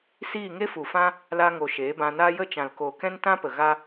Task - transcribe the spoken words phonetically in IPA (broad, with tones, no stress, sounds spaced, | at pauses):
s iː˦˨ ŋ e˦ f u˨ f ã˦ | l a˧ ŋ o˨ ʃ eː˨˦ b ã˧ n aː˦ j ə˦˨ t͡ʃ ã˨ l k o˨ k ɛ̃˦ n t ã˦ p ə˨ ɣ a˦